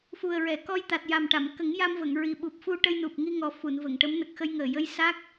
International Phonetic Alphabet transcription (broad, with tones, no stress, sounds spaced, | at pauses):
f u˨˩ ə̯ ɹ ɛ˨˩˨ k ɔ˧ j t̪ a˨˩ t̚ j a˨˩ m ʈ a˨˩˨ m k ə˨˩˦ ŋ j a˧ m v ə˨˩˨ ŋ ɹ i˨˩ ɓ u˨˩ p̚ f u˧ ʈ ə˧ j n u˨˩ p̚ ŋ i˧ ŋ ɔ˨˩ f u˨˩˨ n v ə˨˩˨ ŋ ʈ ə˧˥ m n ə˨˩ k̚ x ə˧ j ŋ əː˨˩ j ə˧ j s a˦˥ k̚